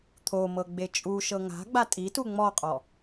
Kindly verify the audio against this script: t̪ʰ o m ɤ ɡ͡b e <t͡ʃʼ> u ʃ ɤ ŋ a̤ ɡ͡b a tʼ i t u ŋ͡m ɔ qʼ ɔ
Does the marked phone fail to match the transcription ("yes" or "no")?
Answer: no